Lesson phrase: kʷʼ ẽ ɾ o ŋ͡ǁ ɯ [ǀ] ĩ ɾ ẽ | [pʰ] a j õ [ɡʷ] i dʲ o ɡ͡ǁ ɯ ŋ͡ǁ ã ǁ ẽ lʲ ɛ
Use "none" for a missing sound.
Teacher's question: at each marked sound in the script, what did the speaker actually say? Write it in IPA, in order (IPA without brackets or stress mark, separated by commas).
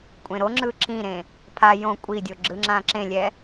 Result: ǁ, pʰ, kʷʼ